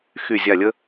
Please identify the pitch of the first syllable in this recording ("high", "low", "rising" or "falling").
falling